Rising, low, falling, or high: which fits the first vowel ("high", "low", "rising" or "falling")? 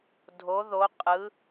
rising